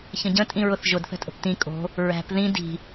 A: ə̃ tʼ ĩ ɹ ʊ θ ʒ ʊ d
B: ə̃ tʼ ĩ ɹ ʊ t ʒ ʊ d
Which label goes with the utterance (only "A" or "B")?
A